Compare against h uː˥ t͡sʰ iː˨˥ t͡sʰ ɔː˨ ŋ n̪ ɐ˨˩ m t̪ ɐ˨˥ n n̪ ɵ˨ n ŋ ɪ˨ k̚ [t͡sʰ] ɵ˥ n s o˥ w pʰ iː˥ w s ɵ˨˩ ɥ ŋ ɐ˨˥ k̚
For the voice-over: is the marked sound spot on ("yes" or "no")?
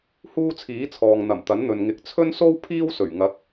yes